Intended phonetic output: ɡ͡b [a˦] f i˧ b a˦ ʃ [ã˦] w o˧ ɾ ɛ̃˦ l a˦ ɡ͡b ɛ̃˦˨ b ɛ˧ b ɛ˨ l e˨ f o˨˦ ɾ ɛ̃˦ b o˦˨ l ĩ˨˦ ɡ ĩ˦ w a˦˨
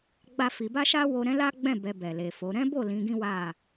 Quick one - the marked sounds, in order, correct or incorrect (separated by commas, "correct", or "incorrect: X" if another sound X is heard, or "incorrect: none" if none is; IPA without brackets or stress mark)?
correct, incorrect: a˦